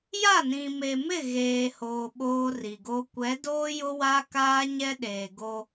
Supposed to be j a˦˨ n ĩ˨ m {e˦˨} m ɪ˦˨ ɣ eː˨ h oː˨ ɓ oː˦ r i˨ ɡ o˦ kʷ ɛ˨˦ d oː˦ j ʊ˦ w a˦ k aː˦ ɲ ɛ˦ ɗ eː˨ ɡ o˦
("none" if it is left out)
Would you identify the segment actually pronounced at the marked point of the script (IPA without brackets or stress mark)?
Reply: e˨